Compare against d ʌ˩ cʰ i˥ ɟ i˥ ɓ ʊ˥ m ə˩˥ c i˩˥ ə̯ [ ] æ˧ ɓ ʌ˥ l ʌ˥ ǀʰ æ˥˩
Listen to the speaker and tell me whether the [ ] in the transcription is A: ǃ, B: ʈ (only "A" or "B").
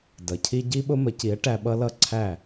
B